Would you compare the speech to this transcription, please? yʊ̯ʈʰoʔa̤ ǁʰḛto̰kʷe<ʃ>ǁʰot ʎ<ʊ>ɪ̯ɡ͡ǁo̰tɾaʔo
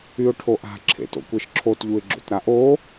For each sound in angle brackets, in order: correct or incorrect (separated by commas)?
correct, incorrect